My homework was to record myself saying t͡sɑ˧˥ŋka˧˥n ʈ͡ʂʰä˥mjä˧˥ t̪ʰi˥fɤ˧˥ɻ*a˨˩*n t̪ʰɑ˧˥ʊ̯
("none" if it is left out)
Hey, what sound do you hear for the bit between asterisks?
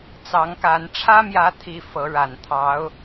a˨˩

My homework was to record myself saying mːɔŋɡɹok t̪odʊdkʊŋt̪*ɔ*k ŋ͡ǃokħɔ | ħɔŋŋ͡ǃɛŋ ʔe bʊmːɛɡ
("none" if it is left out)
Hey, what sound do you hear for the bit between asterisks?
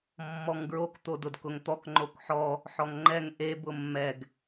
ɔ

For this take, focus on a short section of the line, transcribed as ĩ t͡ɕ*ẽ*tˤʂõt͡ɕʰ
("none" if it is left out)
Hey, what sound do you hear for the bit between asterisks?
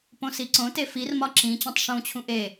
ẽ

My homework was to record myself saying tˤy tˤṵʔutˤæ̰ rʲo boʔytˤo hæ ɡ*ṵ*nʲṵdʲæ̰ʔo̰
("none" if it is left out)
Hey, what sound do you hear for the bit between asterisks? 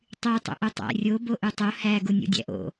u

